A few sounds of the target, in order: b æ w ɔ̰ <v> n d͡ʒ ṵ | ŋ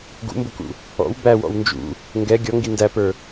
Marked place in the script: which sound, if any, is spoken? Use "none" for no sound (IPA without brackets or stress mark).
w